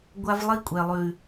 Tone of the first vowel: high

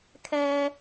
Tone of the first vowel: high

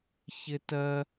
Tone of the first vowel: high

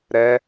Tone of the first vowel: rising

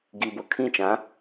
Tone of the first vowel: low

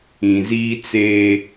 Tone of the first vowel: low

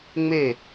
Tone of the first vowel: falling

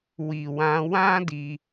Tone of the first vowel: low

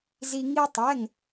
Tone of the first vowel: high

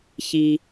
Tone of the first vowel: low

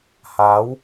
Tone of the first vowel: rising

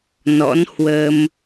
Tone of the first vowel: rising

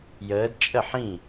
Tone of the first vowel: rising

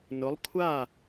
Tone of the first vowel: rising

